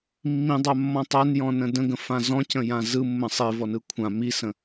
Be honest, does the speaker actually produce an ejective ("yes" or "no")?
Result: no